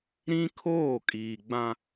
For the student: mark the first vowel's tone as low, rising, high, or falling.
high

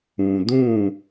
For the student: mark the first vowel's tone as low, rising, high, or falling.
low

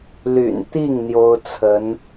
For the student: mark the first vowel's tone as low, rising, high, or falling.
low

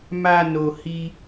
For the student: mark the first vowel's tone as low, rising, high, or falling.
low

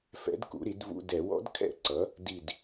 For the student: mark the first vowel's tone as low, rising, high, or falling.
rising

